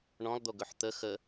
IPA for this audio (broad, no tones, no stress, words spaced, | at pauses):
ɳɔ̃lˠd̪oɡɵħ t̪ə xə